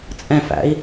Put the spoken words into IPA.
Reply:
t͡sʼ ɛ̃ f æ̰ i̯

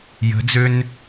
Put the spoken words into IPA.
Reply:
j ə̤ d͡z ø n

